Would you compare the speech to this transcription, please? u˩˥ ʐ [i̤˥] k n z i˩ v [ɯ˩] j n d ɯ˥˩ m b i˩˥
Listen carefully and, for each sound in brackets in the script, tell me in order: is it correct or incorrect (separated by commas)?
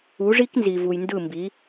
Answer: incorrect, incorrect